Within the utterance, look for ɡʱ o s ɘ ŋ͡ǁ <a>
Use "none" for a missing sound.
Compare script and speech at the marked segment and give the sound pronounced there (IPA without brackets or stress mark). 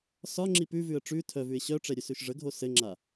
a